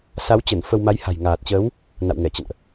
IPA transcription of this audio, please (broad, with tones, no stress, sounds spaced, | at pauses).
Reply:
s a˨˦ w t͡ɕ ə˧˩ n f ə˧ w m a˨˦ j h a̤˨˩ j ŋ aː˨˩ t̚ t͡ɕ əː˨˦ w | n a̰˧˨ w ŋ ɛ˧˩ t͡ɕ ə̰˧˨ n ʔ